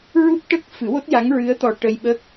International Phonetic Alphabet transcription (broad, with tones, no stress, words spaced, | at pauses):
ɹu˦˥p̚ʈə˦˥k̚fɨ˨˩˦ wo˦˥t̚ja˧˥ŋ ɹɨ˧˥ə̯t̪ɔ˨˩ ʈə˧jɓə˦˥k̚